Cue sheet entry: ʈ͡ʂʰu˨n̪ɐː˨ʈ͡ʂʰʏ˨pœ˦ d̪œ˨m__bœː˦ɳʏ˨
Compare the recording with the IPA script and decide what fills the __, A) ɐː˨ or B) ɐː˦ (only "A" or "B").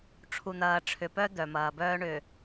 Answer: A